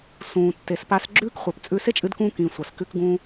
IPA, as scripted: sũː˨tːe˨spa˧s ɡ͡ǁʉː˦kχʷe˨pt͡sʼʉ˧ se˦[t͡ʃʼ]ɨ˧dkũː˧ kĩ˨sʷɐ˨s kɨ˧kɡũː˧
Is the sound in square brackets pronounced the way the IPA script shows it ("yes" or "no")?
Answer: yes